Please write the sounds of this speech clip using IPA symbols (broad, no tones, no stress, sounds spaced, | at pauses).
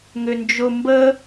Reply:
ŋ ʏ n d͡ʒ ʊ m b ə